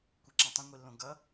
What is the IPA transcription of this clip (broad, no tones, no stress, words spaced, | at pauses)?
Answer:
kʷeǁãtˤõ ŋʷilːõ ɡʌ